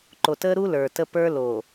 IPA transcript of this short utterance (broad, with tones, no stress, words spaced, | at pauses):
ǃo˨tə˦ɾu˦ lə˞˨tə˦ pə˞˦ lo˨